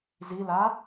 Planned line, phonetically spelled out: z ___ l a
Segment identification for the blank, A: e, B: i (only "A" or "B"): B